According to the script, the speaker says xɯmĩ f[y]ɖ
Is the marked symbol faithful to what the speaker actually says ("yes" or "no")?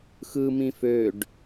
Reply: no